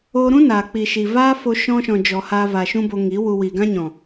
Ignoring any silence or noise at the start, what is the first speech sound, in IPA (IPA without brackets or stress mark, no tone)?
oː